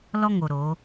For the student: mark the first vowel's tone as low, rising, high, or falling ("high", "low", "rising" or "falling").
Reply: high